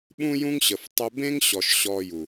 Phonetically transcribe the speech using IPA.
ɓũ˦jũ˦ŋ ɕə˨f tˤʊ˧bẽ˦ŋɕɔ˨ʃ ɕɔ˧ju˨

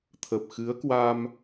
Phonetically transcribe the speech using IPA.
t̪ʰə˨˩p̚xɨ˨˦ə̯kwa˧m

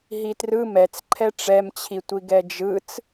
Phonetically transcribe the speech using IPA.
ɦitrɯ mɛt͡sǃʰɛ ʈ͡ʂɛmt͡ɕʰitʷi ɡɛd͡ʒɯt͡s

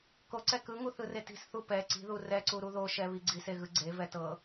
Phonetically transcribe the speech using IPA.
koǀɛ kɯŋuθɯre ti̤sθu pɛ ǀi̤ðu rɛǀuɾu ðoʃɛβi ɡ͡ǀiseɣɯ ɡ͡ǀevɛ tɤ

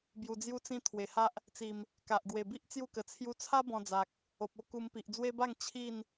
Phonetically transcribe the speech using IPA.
bju˧d͡zju˦t͡sĩ˦ t̪ʰwe˨˩ha˦ʔ | t͡si˨˩m | ka˨ʔ ɡwe˨˩bi˦ʔ t͡sju˥˧kə˨˩ t͡sʰju˧t͡sʰa˦ bɔ̃˧ d͡za˨k̚ | o˨p̚o˦ ku˧mpi˨ʔ d͡zwe˦ba˥˧ŋ t͡ɕʰi˥˧n

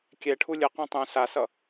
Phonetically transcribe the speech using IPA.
kʲɛʈʰu lʲɯqõ tˤũ sasʌ

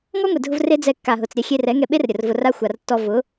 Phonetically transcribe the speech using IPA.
ŋɔ˦ŋʷe˨dʱʊ˧v re˦d͡zɛ˧ kːa˨ɦʊ˨t͡s ɾʲɛ˧xʲe˧rɛ˨˦ ŋɛ˧ɓe˦rɾʲə˨r vʊ˧ra˦ xʷa˨rtːɔ˧ vʊ˨˦

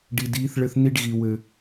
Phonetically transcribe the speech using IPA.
ɖi˨diː˨˦θɭɘ˧θ ni˧ɖɣi˨ wɘ˨

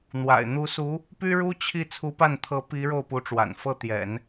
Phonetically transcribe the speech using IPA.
n̪wa̰˨˩ɪ̯ n̪u˧˥su˧˥ | py˥ɻu˥t͡ɕʰi˥˩ t͡sʰu˧˥pa˥˩nt̪ʰɤ˧˥ pi˧˥ ɻo˥˩ʊ̯pu˧˥ʈ͡ʂwa̰˨˩n fɤ˥˩t̪jɛ̰˨˩˦n

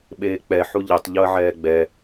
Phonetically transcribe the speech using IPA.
ɓeːk͡pɛ ħuʎetˤ ʎoɐ̯ʕɛːɡ͡bɛ

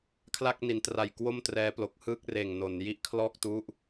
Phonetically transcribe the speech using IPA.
kʰla˥˩k̚ni˩˦ntra˨˩j kwo˥˩mtrɛː˦˥plo˨˩k̚ hɯː˥˩k̚reː˨˩ŋno˩˦n ji˦˥ʔkʰlɔː˥˩k̚tu˦˥ʔ

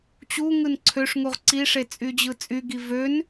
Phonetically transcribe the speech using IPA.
t͡ɕuŋɯn ǀʰøʂŋuʁ ǀiʂe t͡sʼyd͡ʑɯt͡sʼyɡi vøn

